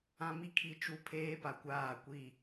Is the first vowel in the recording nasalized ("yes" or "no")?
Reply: yes